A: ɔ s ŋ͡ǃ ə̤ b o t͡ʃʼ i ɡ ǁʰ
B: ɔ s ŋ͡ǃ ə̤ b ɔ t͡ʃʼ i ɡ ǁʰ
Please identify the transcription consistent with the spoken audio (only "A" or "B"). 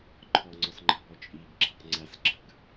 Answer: B